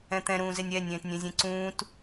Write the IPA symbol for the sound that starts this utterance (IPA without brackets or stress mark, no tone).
ɛ̃